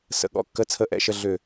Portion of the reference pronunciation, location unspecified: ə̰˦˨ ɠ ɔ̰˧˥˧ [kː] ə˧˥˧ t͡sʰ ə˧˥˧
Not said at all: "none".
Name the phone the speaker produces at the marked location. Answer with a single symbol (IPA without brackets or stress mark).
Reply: kː